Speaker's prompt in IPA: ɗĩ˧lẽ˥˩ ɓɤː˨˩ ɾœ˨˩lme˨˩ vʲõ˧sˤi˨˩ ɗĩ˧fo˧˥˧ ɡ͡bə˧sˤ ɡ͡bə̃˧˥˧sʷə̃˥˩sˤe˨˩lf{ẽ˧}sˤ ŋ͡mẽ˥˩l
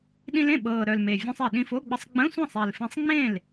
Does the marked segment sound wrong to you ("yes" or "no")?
no